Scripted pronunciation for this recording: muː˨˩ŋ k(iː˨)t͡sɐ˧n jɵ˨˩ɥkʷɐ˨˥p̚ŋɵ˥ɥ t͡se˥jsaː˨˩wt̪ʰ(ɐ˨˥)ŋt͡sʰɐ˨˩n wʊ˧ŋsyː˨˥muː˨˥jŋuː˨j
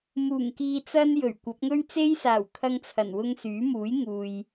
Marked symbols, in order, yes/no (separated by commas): yes, no